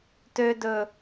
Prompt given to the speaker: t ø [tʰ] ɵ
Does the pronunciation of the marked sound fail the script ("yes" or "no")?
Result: yes